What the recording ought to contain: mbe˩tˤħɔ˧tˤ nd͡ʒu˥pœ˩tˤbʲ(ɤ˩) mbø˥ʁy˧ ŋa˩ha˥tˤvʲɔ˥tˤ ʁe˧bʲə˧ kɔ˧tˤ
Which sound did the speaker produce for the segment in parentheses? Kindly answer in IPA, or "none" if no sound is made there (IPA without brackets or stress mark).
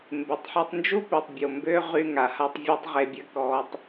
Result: o˩